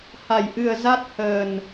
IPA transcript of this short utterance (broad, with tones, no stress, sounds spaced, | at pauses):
h a˧˩ j ʔ ɨ˨˩ ə̯ z a˦˥ t̚ h əː˨˩ n